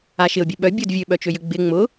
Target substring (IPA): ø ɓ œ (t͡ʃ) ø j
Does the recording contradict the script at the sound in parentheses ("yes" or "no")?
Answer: no